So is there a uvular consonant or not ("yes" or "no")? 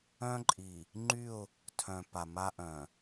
no